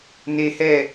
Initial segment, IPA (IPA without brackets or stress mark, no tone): n